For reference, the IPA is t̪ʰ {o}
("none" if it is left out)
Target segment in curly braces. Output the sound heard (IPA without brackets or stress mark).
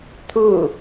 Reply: u